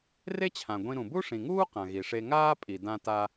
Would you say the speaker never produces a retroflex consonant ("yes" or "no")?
no